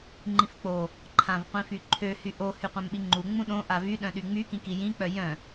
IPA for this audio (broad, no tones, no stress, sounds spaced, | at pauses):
ŋ͡ǃ ĩ f k͡p o | ǃʰ ã v qʷ ĩ f y ǃʰ ø h y ʔ o h y qʷ ã m ɓ i ŋ͡ǃ u ŋ͡m ũ ɗ õ ʔ a v y ɗ œ̃ ɗ y ŋ͡m y k ĩ k i j ĩ k͡p œ j œ̃